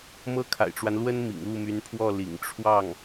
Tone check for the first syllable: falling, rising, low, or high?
high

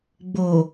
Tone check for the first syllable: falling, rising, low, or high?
low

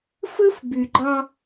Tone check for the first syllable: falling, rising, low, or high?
high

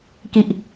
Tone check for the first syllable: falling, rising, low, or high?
low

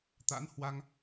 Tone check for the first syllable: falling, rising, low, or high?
rising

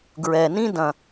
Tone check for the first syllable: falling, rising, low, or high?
low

